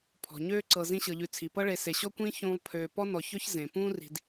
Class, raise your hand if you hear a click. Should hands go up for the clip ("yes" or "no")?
yes